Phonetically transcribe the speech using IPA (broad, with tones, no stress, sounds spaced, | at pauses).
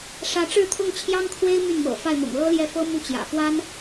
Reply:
ʂ ä˧˥ ʈ͡ʂ ɻ̩˥˧ t̪ʰ ʊ˥˩ ŋ t͡ɕʰ j ɑ˥ ŋ kʰ w e˥ ɪ̯ m y˥˩ n m ɤ̰˨˩ f a˥˩ ɪ̯ m ʊ̰˨˩ ŋ l ɤ˥ l j ɛ˥˩ f ɤ˥ m u˥˩ t͡ɕ j ä̰˨˩ f w a˥ n